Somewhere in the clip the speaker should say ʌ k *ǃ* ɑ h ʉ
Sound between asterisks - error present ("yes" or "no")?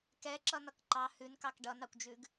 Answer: no